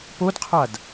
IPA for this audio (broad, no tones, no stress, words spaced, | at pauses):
podqʰad